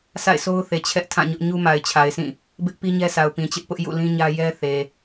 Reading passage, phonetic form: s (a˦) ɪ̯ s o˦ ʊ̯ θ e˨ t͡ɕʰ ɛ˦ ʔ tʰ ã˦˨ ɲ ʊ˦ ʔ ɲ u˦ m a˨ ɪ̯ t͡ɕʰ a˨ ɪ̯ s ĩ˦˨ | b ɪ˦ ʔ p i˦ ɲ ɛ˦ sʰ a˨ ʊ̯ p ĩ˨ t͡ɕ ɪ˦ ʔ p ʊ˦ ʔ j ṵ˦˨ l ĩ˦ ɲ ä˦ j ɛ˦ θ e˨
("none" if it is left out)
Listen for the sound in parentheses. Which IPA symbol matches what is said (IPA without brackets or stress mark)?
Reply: a̰˦˨